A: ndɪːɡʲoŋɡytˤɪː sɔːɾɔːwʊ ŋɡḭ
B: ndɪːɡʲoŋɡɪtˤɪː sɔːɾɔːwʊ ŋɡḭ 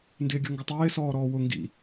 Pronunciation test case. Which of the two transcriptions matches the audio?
B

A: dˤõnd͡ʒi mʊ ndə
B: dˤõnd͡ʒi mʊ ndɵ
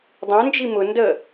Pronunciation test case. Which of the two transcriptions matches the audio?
A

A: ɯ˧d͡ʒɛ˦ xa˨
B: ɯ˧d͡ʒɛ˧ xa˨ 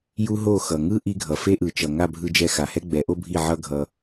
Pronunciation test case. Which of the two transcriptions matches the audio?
B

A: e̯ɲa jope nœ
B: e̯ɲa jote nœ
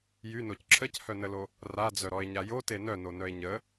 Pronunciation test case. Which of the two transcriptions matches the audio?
B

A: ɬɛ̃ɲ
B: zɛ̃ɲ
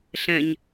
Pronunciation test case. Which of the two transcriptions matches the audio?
A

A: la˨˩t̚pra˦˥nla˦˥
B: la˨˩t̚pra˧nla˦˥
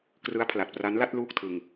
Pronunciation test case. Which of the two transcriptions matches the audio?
A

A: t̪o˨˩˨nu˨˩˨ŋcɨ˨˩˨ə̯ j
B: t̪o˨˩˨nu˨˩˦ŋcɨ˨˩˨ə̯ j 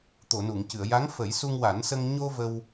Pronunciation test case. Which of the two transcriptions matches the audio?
A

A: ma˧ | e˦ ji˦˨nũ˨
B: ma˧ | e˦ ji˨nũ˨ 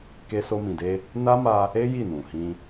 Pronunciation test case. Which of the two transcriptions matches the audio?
A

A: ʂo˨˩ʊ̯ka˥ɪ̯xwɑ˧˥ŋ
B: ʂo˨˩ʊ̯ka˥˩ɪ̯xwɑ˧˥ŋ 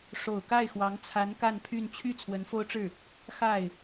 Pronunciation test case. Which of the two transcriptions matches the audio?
B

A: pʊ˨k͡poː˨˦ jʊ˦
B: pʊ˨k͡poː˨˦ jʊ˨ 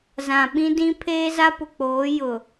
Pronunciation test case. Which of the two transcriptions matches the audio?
B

